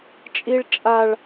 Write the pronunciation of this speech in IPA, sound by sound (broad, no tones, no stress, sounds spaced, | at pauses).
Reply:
t͡ʃʼ i ɭ t͡ʃʼ a ɭ